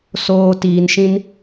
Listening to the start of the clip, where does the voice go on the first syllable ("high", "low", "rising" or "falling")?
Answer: high